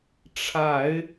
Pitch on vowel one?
low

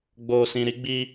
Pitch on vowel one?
low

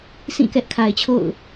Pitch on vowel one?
falling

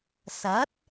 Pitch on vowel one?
rising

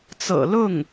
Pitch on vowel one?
low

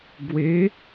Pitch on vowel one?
rising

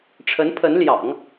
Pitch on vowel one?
rising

